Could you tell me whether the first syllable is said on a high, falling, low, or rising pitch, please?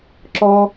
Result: high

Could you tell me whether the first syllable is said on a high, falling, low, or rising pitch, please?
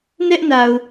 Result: high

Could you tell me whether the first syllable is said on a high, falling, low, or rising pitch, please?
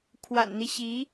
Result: low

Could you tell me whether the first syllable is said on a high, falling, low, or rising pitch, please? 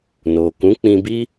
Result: low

